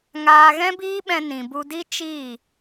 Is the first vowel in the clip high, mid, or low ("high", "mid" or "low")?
low